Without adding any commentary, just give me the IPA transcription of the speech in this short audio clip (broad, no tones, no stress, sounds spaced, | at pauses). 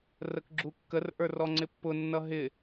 r ə k ɡ͡ǁ u kː ə r ʔ ə˞ r ɔ ŋ͡ǀ ɪ pː ʊ nː ʌ ɦ ɪ